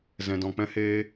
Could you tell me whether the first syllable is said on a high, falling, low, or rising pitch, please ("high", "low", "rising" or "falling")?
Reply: low